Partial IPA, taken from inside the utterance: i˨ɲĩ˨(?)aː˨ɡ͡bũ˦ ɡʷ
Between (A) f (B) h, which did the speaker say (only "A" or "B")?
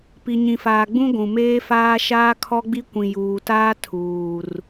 A